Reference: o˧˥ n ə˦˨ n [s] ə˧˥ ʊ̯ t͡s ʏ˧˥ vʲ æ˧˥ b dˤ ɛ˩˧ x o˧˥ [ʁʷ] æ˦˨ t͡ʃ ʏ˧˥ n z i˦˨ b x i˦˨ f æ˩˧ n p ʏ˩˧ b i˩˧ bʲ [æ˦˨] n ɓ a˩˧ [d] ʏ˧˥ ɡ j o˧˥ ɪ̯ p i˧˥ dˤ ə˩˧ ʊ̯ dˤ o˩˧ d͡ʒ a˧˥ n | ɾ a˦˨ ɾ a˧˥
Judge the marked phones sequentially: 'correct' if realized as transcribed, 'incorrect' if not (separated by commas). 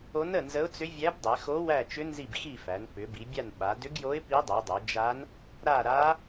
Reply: incorrect, incorrect, incorrect, correct